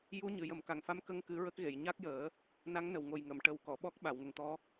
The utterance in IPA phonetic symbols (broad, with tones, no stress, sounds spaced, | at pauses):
j u˧˥ ɲ ɨ˨˩ j ə˨˩˦ m k a˨˩ ŋ f a˧˥ m k ə˧ ŋ k ɨ˨˩˦ ɹ ə˦˥ k̚ ɣ e˨˩˨ j ɲ a˦˥ k̚ j əː˨˩˦ | n a˧˥ ŋ n ə˨˩ w ŋ o˨˩ j ŋ ə˨˩˨ m ʈ ə˨˩˦ w k ɔ˨˩˨ ɓ ɔ˦˥ k̚ ɓ a˨˩˨ w ŋ ə˨˩ ŋ t̪ ɔ˧˥